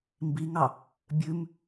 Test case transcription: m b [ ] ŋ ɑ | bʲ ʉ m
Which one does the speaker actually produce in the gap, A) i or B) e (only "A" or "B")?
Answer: A